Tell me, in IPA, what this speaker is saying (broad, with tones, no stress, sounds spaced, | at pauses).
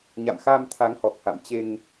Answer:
ɲ a̰˧˨ m x a˧ m t̪ʰ a˨˦ ŋ h ɔ˨˩ k̚ h a̰˧˨ m t͡ɕ e˧ ŋ